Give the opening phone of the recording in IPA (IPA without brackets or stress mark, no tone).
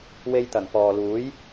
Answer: w